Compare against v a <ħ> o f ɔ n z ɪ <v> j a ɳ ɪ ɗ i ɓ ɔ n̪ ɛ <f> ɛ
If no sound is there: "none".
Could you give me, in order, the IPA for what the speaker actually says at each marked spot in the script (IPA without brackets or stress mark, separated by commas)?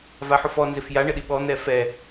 ħ, f, f